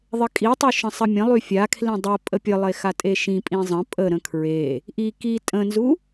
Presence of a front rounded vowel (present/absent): present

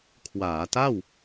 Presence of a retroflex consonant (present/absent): absent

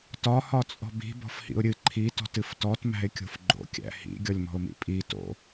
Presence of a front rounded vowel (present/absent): absent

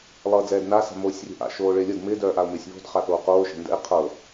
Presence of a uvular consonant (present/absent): present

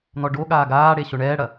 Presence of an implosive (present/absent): present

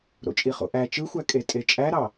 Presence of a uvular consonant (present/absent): present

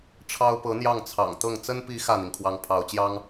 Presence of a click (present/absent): absent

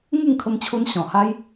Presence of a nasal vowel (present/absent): present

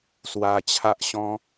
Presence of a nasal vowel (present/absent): present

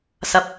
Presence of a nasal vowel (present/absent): absent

